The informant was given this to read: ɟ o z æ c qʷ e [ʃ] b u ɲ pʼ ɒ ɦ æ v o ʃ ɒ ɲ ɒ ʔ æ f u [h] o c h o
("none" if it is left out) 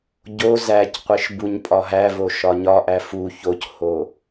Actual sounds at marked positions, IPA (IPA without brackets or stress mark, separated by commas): ʃ, ç